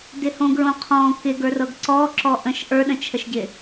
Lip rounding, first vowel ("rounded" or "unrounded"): unrounded